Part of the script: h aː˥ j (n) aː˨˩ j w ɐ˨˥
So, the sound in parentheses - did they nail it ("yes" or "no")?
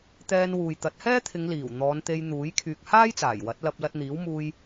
no